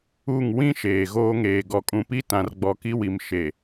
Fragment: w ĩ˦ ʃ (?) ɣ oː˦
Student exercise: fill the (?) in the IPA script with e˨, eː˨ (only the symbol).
eː˨